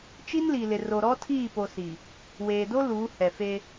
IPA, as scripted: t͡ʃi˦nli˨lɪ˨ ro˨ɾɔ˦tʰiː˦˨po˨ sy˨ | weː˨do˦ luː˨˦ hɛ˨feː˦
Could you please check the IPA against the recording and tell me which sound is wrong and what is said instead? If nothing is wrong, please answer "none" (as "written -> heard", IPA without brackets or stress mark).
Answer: y˨ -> i˨